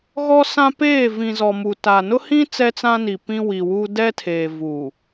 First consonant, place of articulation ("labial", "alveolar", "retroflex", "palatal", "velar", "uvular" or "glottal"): velar